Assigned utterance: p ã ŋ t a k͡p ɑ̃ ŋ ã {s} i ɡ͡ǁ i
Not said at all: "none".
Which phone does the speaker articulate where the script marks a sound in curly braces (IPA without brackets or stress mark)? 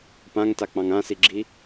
s